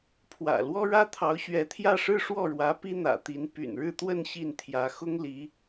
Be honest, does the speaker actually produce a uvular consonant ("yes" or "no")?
no